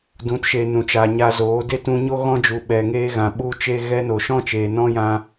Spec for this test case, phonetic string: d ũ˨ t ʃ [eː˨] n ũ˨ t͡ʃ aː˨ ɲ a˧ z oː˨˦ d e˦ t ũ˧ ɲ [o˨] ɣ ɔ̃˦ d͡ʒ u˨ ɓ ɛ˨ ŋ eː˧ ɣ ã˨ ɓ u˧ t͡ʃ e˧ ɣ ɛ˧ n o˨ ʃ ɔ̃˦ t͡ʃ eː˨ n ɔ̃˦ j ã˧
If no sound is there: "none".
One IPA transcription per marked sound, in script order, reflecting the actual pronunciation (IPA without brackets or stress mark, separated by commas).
e˨, o˦